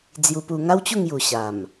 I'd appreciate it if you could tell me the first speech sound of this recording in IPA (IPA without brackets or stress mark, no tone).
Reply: d͡z